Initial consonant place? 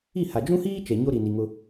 glottal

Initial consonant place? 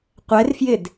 uvular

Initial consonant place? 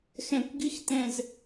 velar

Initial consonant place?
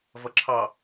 labial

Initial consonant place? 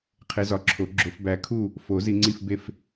uvular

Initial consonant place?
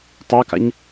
alveolar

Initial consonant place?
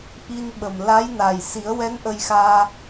glottal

